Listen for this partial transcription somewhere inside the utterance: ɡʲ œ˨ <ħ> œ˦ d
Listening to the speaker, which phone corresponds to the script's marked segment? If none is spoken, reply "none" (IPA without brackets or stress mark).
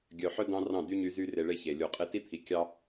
ħ